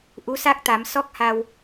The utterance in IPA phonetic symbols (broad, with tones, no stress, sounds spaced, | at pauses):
ʔ u˧˥ s a˦˥ k̚ t̪ a˨˩˦ m s ɔ˦˥ k̚ h a˧ w